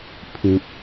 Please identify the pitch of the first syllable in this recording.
low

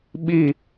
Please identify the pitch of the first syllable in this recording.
falling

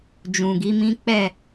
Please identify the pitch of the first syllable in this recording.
low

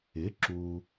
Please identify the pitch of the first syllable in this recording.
rising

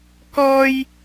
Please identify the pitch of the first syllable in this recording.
high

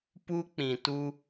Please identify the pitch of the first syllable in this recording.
high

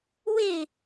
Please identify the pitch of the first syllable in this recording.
falling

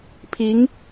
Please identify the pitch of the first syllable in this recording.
rising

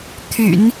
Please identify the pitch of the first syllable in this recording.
low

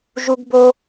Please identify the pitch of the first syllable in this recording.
high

